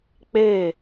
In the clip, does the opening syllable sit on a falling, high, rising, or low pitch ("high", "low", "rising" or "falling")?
falling